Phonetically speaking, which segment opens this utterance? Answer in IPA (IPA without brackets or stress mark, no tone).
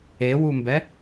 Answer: e